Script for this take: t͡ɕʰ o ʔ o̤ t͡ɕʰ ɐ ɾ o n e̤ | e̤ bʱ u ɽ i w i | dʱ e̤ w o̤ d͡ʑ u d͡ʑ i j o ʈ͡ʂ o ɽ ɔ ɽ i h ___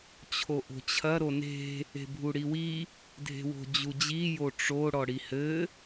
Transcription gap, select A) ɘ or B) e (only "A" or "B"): A